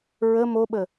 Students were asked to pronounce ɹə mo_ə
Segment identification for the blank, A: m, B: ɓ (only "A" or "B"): B